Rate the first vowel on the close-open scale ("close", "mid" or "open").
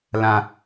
open